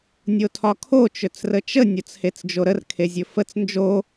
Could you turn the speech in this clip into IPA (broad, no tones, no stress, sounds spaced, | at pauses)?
nʲ o tʰ ɒ kʰ o t͡ʃ ɵ t͡s r ə t͡ʃ ə nʲ o t͡s h e t͡s d͡ʒ o ɾ ə r kʰ e zʲ ɵ f ə t͡s n d͡ʒ o